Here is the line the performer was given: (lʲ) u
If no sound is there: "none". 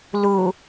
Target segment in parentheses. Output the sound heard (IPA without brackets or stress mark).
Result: l